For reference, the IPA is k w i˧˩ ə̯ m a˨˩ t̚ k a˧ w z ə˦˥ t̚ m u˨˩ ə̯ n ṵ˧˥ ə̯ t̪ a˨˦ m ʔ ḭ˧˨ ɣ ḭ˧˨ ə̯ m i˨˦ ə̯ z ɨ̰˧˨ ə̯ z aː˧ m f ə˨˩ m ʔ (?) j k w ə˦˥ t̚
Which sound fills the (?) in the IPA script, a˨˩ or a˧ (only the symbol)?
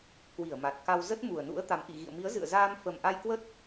a˧